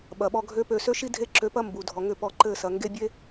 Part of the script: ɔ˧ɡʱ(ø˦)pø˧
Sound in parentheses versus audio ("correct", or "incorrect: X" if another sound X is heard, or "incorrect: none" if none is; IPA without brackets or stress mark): correct